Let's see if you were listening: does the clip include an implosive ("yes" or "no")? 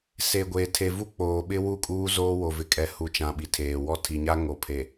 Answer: yes